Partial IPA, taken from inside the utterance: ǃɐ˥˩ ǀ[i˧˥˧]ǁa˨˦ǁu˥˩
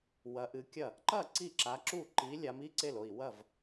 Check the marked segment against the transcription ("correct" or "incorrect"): incorrect